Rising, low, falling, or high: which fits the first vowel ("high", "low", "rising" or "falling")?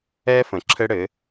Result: high